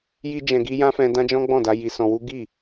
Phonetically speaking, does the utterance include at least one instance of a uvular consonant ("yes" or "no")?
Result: no